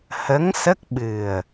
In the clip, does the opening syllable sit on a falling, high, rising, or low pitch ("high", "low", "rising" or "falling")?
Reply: rising